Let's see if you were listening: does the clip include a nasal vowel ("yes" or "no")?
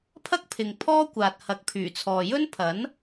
no